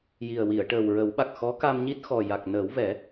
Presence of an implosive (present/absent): present